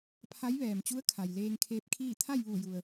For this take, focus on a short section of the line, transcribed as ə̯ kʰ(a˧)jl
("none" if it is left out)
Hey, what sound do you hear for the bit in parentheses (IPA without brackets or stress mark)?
a˩